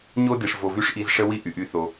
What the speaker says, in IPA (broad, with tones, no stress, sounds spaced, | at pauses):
ɲ o˦ d i˨ ʂ v o˨ v y˧ ʂ ʔ i˧ z ʂ ə˦ w i˦ ʔ y˨ ʔ y˦ θ o˧